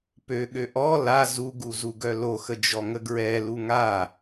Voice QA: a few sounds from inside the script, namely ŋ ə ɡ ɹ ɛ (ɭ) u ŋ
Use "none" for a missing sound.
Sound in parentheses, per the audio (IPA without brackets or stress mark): l